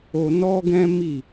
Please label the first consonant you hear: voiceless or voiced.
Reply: voiced